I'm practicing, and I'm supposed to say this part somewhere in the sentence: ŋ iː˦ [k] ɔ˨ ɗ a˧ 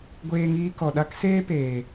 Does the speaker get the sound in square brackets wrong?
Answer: no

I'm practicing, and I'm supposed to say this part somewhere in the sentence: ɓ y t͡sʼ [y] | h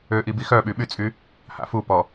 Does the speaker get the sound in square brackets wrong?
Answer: no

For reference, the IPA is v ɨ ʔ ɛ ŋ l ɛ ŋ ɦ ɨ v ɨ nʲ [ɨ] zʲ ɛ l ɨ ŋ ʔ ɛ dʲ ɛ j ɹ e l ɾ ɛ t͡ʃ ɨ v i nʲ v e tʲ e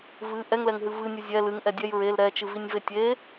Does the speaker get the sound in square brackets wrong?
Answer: no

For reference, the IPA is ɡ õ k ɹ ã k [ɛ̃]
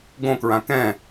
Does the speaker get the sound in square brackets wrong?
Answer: no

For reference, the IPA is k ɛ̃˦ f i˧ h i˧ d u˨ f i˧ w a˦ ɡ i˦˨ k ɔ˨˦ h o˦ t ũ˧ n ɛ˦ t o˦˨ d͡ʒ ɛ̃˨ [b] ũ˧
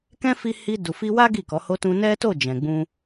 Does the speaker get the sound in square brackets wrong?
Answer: yes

